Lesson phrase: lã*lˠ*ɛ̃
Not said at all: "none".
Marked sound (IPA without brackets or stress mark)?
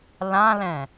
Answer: l